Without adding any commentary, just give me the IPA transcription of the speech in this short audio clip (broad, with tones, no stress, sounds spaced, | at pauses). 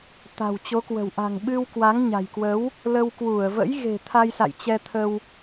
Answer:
t̪ a̤˨˩ w t͡ɕ o˨˦ k w ə̤˨˩ w ʔ a̤˨˩ ŋ ɓ ɨ˧ w k w a˨˦ ŋ ɲ a̤˨˩ j k w ə˨˦ w | l ə˧ w k w u˧˩ ə̯ v ə̰˧˥ j ɣ e̤˨˩ t̪ʰ a˧ j s a̰˧˨ j t͡ɕ ɛ˧ t̪ʰ ə˧ w